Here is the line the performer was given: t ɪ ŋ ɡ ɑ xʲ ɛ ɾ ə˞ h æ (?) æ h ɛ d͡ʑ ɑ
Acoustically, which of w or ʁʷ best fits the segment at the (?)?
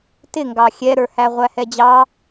ʁʷ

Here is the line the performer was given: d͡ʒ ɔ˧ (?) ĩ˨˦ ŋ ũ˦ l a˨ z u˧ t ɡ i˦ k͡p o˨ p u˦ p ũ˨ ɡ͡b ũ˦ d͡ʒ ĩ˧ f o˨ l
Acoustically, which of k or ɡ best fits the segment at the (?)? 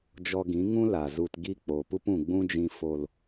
ɡ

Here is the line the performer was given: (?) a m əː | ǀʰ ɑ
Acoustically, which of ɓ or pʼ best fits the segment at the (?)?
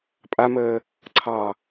pʼ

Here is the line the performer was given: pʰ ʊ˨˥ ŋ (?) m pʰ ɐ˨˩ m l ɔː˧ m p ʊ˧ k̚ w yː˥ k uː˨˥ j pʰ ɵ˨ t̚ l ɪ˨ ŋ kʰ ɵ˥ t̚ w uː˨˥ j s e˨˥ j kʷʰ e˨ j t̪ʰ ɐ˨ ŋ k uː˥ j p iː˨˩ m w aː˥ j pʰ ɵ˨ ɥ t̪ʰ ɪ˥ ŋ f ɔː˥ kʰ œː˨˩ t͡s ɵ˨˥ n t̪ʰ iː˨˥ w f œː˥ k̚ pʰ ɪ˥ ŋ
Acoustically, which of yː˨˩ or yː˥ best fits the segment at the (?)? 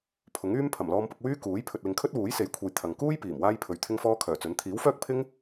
yː˥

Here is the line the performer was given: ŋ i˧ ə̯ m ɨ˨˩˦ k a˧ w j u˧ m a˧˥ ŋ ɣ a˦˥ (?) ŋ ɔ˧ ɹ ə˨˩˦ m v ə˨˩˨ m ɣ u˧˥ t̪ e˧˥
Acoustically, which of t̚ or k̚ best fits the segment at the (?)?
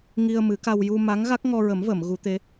k̚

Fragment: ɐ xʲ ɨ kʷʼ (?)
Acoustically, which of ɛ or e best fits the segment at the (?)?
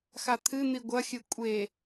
e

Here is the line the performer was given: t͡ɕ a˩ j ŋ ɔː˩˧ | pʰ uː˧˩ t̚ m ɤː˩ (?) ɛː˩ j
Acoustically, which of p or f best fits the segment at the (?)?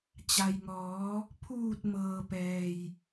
p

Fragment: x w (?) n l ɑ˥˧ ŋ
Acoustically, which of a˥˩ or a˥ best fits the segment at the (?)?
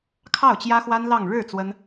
a˥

